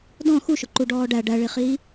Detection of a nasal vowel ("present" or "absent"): present